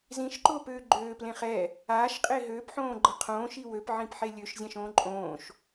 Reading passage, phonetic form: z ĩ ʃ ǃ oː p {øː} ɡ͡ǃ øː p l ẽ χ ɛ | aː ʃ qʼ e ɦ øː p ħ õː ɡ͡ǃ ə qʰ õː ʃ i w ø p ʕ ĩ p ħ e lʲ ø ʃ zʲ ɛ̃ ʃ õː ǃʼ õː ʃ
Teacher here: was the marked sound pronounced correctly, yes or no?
yes